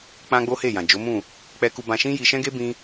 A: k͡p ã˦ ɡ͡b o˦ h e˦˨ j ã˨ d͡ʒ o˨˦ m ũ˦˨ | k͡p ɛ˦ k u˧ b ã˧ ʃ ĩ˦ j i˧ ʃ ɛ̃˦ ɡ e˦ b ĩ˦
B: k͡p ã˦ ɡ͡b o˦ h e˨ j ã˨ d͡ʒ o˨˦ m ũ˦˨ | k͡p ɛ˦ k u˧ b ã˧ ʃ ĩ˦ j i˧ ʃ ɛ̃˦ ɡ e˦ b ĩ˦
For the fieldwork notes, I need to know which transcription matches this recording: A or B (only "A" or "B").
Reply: A